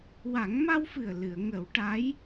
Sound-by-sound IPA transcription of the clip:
w a˨˩˦ ŋ m a˧ w f ɨ˨˩ ə̯ l ɨ˨˩˨ ə̯ ŋ ə˨˩˦ w ʈ a˧˥ j

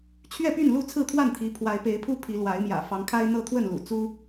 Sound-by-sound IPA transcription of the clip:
t͡ɕʰ ɥ ɛ˥˨ p y˥˨ n l u˥˨ t͡sʰ ɹ̩˥˨ t̪ʰ w a˥˨ n t̪ʰ i˨˦ pʰ w a˨˦ ɪ̯ p e˨˦ ɪ̯ pʰ u˦ pʰ i˨˦ l w a˨˦ ɪ̯ m j ä̰˨˩ f ɑ˨˦ ŋ kʰ a˦ ɪ̯ n̪ ɤ˦ t̪ʰ w ə˥˨ n l ṵ˨˩ t͡s u˦

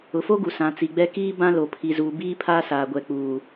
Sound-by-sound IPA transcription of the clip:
ʊ˨ f o˦ ɡ u˨ s ã˨ t͡s i˨ ɡ͡b ɛ˦ k iː˦ b ã˦ l o˨ pʰ i˨ z uː˨ b iː˦ pʰ aː˦ s aː˨ ɡʷ ɛ˨ k͡p uː˨

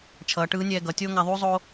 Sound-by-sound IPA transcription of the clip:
t͡ʃʰ ʌː˩˧ ʈ ɯː˧˥ nʲ ɛː˧ ɡ ʌ˩˧ tʲ oː˥ ŋ a˧ ðˤ uː˥ zˤ oː˥

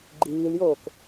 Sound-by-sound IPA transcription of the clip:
ɡ͡ǃ iː l j oː k

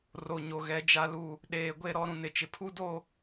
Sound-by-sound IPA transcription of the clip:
r o˨ ɲ o˨ ɣ ɛ˨˦ d͡ʒ a˦ l u˦˨ | ɗ eː˨ ɡʷ e˦˨ ɾ ɔ˦ ɾ ũ˨ n ɪ˨ t͡ʃ ɪ˨ pʰ u˦ d o˦˨

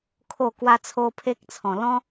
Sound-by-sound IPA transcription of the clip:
kʰ o˥˧ k w a˦ t͡sʰ o˦ pʰ e˦ k̚ t͡sʰ ɔ̃˨˩ l ɔ̃˦

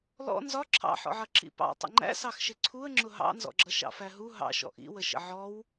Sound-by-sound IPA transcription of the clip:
l ɔ̰ n z ɒ ǁʰ ɑ̰ ħ ɔ̰ ʕ ʌ ǁ ḭ p ɑ̰ tˤ ə̰ ŋ͡ǃ æ̰ s ɑ x ʃ ɪ ǀʰ u ə̯ ŋ͡ǁ ʊ ɦ ɑ̰ n z ɔ̰ ɡ͡ǁ ʌ ʃ ɑ̰ f æ ɦ u ɦ ɑ̰ ʃ ɔ̰ ʔ ḭ w ə ʃ ə̰ ʕ ɔ w

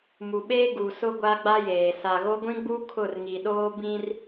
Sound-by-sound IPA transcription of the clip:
m u˨ ɓ eː˦ ɡ u˨ s ʊ˦ ɡʷ a˦ ɡ͡b a˦ j eː˨ s a˨ ɣ o˦ ɡʷ ĩ˦ ɡ͡b u˦ kʰ ʊ˦˨ r ŋ i˨ ɗ oː˦ b ĩ˦ r

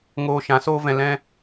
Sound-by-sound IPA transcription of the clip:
ŋ oː˦ ʃ ã˨˦ s oː˦ v ɛ̃˧ l ɛ̃˦

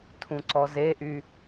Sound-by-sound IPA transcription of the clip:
tʰ ũ ǀ ɔ z e ʔ y

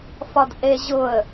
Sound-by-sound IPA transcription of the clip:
f ɒ d ʔ e ʑ ʊ ə̯

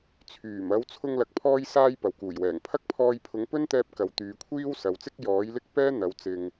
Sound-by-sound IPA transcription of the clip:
t͡sʰ yː˨˩ m ɐ˨˧ w t͡sʰ ʊ˧ ŋ l ɐ˨ k̚ pʰ ɔː˧ j s aː˧ j p ɐ˨ w k uː˨˩ j w ɛː˨˩ ŋ pʰ ɐ˥ k̚ pʰ ɔː˧ j pʰ ʊ˨˥ ŋ p ɵ˥ n t̪ ɛː˧ p̚ k ɐ˨˧ w t̪ yː˨˧ kʷʰ iː˥ w s ɐ˨˧ w t͡s ɪ˥ k̚ j ɔː˨˥ j l ɪ˥ k̚ p ɛː˥ n̪ ɐ˨˧ w t͡s ɪ˨ ŋ

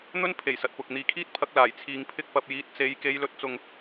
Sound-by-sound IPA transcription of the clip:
n̪ ɵ˥ n pʰ e˨˩ j s ɐ˨ t̚ p ʊ˨ k̚ n̪ iː˨˧ kʰ iː˥ t̚ pʰ ɐ˧ k̚ l aː˨˩ j t͡sʰ iː˨ ŋ pʰ ɪ˧ k̚ p ɐ˨ p̚ j iː˨˥ t̚ t͡s e˨˧ j k e˨˧ j l ɵ˨˥ t̚ t͡s ʊ˨ ŋ

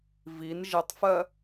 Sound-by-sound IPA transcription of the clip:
v i n ʒ ɘ tˤ f ɜ

